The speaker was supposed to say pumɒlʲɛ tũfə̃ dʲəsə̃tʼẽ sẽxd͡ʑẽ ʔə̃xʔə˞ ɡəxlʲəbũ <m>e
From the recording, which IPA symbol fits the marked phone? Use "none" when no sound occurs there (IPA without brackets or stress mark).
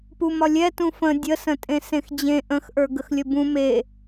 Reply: m